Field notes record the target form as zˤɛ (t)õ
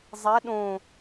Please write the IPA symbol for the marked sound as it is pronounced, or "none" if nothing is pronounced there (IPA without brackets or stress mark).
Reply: ɗ